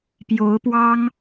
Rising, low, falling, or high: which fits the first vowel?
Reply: rising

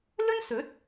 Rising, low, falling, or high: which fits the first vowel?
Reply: high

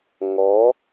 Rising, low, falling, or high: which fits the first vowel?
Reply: rising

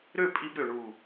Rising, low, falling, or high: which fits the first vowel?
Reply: falling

